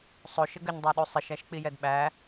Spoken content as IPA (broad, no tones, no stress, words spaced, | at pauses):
sˤoʃə ɡəɲdˤæɗu sˤəʃæʃk͡pi jɛdɓæ